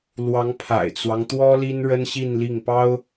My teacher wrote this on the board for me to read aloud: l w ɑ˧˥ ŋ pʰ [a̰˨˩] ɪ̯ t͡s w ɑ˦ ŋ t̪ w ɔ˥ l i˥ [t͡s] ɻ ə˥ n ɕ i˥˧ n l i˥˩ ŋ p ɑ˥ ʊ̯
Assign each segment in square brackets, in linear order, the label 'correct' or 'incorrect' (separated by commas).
correct, incorrect